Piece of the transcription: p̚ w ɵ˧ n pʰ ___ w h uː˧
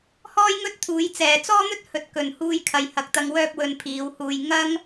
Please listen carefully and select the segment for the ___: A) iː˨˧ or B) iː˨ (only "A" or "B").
A